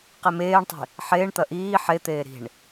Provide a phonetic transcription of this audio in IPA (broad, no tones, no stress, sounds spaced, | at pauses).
q e m eː ɳ tˤ i̤ | ħ eː ɳ t̪ ɐ ʔ iː ħ e t̪ eː ɾ i̤ ɳ